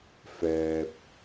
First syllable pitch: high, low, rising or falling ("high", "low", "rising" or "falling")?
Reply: low